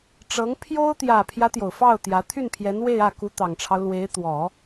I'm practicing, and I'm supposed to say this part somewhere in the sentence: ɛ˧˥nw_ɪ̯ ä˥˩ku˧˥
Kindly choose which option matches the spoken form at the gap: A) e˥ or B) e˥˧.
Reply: B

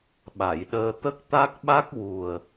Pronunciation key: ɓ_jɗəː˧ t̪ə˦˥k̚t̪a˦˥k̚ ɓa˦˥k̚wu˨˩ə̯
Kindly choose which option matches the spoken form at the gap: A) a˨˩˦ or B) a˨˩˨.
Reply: B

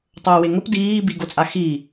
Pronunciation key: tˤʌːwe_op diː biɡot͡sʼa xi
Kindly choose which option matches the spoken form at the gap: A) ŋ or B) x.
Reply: A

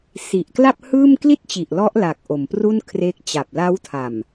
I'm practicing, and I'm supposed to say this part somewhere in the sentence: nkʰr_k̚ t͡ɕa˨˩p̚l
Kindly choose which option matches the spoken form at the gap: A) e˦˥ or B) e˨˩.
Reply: A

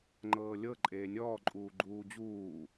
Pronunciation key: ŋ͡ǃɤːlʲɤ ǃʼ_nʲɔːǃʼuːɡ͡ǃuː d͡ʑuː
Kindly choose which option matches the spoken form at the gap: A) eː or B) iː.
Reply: A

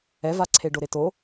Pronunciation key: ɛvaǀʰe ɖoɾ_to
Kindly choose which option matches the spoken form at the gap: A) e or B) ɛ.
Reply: A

